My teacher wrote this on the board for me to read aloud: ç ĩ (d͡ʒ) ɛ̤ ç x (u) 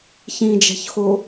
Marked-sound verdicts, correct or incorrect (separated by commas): correct, incorrect